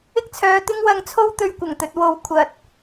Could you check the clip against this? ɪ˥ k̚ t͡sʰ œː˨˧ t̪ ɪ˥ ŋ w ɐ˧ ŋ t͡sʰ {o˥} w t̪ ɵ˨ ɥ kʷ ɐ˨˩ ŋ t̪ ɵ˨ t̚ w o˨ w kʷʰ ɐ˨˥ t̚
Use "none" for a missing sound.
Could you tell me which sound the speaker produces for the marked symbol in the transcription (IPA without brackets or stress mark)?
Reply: o˥